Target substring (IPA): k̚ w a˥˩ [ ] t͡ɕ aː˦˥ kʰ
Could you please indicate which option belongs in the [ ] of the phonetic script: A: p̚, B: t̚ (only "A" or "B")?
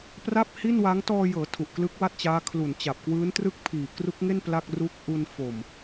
B